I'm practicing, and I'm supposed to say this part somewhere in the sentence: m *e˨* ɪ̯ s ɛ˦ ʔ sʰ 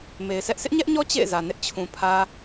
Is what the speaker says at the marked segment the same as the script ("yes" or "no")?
yes